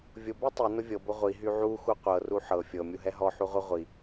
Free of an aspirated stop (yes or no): yes